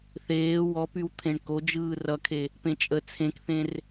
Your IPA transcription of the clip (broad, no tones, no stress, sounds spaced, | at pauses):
θ eː w ɔ p y w t̪ʰ ẽ ɳ k o d͡ʒ ɯː r ʌ kʰ e | p ẽ t͡ʃʼ ə t͡sʰ ẽ k θ ẽ r